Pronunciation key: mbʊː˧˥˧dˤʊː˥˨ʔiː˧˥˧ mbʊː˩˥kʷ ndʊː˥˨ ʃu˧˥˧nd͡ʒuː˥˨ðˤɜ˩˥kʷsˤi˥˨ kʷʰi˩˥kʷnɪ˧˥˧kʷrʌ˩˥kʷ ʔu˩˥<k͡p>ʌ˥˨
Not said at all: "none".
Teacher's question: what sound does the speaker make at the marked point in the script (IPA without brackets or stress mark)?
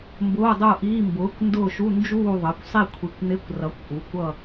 kʷ